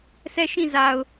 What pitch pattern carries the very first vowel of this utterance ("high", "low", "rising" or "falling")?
falling